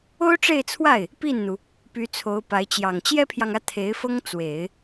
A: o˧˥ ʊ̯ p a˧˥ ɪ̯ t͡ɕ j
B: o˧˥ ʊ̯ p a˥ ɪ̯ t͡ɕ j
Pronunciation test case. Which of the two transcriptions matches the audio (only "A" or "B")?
A